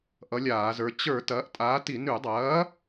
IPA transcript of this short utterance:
ʔ ʌ˨˥ lʲ aː˧˩˧ z ə˞˨˥ t͡ɕ ə˞˧˩˧ t ɐː˨˥ ʔ tʼ aː˨˥ t i˧˩˧ n ʉ˧˩˧ dˤ ɐː˨˥

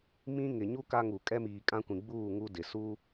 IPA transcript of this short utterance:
m ĩ˦ ŋ ɪ˨ ɲ u˦ k a˦ ŋ u˨ kʼ ɛ˦ m iː˨ kʼ ã˦ kʷ ĩ˨ ɡ͡b uː˦˨ ŋ u˦ d ɪ˨ s u˦

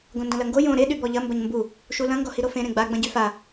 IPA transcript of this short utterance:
ɡ õ n d ɐ̃ l ɐ ŋ ɡ o j õ ɾ e ɗ y b ɔ ʎ ɐ m b ɐ ɲ m b u | ʃ u l ɐ̃ ŋ ɡ ɔ h i ɾ o f ẽ ɾ ẽ ɡ͡b a ɡ͡b ɐ̃ ɟ y f a

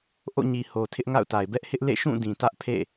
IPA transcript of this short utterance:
ʔ o̰˦˨ ɲ i˨ h o˨ tʰ ɪ˦ ʔ ŋ a̰˦˨ ʊ̯ t a˨ ɪ̯ b ɛ˦ ʔ h ɪ˦ ʔ l ḛ˦˨ ʃ ũ˦˨ d ĩ˨ t ä˦ ʔ pʰ ḛ˦˨

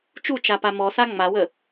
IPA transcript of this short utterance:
t͡ʃ u t͡ʃ a p a m ɔ s a ŋ͡m a w ə

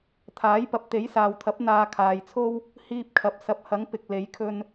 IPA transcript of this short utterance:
t̪ʰ aː˨˥ j p ɐ˨ p̚ t̪ e˨˥ j s aː˨ w t̪ʰ ɐ˨˥ p̚ n̪ aː˧ kʰ aː˨ j t͡sʰ o˥ w | h iː˧ p̚ kʰ ɐ˨ p̚ s ɐ˨ p̚ h ɐ˨˥ ŋ p ɪ˨ k̚ l e˨˥ j kʰ ɵ˧ n

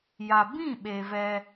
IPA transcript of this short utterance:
j a˨ b ĩ˦˨ ɓ e˨ v ɛ˦

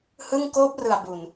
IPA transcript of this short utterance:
h ɯ˥˩ ŋ k oː˦˥ p̚ r ɯ˨˩ a̯ b u˨˩ n

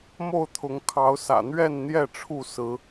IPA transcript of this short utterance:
m o˥˨ ʊ̯ t̪ʰ ʊ˨˦ ŋ kʰ ɑ˨˦ ʊ̯ s ä̰˨˩ n̪ ɥ ɛ˥˨ n n̪ j ɛ˥˨ ʈ͡ʂʰ u˥˨ s ɹ̩˨˦

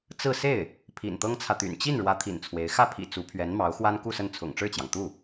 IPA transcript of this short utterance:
t͡s ɹ̩˥˧ s e˥˩ ɪ̯ | pʰ ḭ˨˩ n t̪ ɤ˥ ŋ t͡sʰ ä˨ t̪ y̰˨˩ n t͡ɕ i˥˩ n ɻ w ä˧˥ t̪ʰ ḭ˨˩ n t͡sʰ w e˧˥ ɪ̯ x ä˥˩ pʰ ḭ˨˩ t͡s u˧˥ pʰ ɥ ɛ˧˥ n m ɑ˧˥ ʊ̯ x w a˥ n k u˥˧ s ə˥˩ n t͡sʰ ʊ̰˨˩ ŋ ʈ͡ʂ ɻ̩˥˩ t͡ɕ j ɑ˩ ŋ t̪ u˥˩

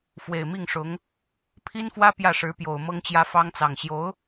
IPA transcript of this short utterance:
f w e˨˩ ɪ̯ m i˥˩ ŋ ʂ ʊ˧˥ ŋ | pʰ i˥ n f w ä˥ p j ä˥˩ ʂ ɻ̩˧˥ p j o˨˩ ʊ̯ m ɤ˥ ŋ t͡ɕ j ä˥ f ɑ˥ ŋ t͡s ɑ˨˩ ŋ ɕ j o˧˥ ʊ̯

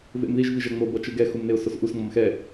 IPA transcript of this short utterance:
v ḛ m ð i ʒ v i ʒ ɛ ŋ͡m o b ʌ t͡ʃ ɯ ɡ ɛ x u m n e ʊ̯ s o s ʔ u s ŋ͡m ʌ m x ɛ

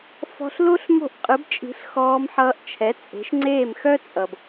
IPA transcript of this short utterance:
f ɔ̤˧ ɬ l o˥ ɬ m o̤˥˩ ʔ qʼ ɯ˩˥ b t͡ʃʼ i̤˩˥ ɬ x ɔː˧ m ħ ʌː˧ ʔ t͡ʃʰ ɛ˩˥ t͡sʼ e̤˩˥ ʃ ŋ͡ǀ eː˥˩ m x œ˥ t͡sʼ ʌ˩ b

